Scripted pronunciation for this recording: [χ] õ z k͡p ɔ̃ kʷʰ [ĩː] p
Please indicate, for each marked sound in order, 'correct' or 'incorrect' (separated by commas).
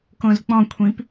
incorrect, incorrect